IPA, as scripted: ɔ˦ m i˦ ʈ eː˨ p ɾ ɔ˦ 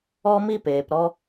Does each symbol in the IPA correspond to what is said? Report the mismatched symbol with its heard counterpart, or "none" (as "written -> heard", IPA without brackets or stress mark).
ʈ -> p